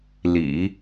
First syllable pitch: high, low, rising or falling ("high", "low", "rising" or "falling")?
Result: low